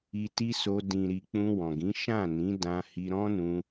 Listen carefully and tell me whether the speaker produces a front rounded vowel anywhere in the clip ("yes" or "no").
no